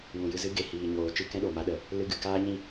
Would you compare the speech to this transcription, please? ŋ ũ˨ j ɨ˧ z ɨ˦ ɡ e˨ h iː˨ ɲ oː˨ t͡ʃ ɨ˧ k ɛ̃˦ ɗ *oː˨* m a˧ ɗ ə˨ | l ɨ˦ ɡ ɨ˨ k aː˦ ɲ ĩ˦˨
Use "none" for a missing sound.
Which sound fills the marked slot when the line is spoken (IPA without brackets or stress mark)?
o˨